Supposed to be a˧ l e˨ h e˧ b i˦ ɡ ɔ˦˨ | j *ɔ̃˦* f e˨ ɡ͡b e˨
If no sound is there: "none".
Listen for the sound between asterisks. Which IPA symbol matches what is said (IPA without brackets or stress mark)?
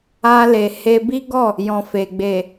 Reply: ɔ̃˨